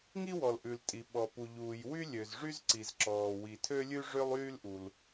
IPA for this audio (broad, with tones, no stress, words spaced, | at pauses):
ŋi˥wɔ˩l ʔʉ˩ltʼi˩ ɓɔ˩pu˩ʎuː˩j wy˥ lʲø˩zʐy˥z ǀi˩zǁɔː˩ wi˩tʰø˥lʲʉ˥ ʐø˥lˠyː˥lʔu˩l